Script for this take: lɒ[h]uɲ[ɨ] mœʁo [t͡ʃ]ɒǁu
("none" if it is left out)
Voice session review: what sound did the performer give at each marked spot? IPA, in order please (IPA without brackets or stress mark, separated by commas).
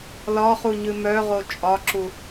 χ, ɨ, t͡ʃʼ